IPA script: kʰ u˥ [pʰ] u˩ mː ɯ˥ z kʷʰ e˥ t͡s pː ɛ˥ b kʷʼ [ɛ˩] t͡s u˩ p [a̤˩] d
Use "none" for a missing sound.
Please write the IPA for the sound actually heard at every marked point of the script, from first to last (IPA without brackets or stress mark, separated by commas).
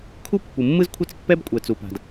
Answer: pː, ɛ˩, a̤˩